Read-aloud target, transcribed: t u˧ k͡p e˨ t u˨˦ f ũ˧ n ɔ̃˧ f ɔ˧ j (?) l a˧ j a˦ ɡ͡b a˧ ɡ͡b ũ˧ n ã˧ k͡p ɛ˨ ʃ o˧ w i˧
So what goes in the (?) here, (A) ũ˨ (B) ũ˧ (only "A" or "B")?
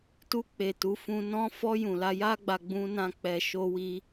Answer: A